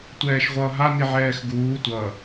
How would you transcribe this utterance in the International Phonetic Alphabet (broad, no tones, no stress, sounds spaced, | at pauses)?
tʷ ɛː ʃ ʁʷ ʌː ɦ a n i ʕ ɛː x ɡ uː tʷ ʌ